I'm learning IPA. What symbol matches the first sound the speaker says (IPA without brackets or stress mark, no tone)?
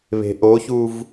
β